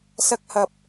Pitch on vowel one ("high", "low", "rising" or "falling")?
high